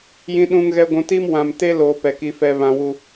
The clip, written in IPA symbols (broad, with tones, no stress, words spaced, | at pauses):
jĩ˨ɗũ˨ŋɣɛ˨ ɡʷũ˨ti˦m wã˨mte˦ loː˨ pɛ˨ki˦fɛ˦βã˦ wu˦